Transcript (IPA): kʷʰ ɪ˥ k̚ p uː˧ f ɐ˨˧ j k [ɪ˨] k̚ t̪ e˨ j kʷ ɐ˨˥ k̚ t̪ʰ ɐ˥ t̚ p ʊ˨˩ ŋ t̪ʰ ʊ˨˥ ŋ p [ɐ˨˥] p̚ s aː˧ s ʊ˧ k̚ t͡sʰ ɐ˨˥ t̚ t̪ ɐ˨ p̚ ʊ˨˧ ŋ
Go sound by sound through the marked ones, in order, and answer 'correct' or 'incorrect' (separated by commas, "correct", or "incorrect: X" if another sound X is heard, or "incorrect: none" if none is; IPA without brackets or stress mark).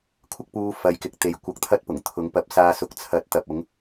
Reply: correct, correct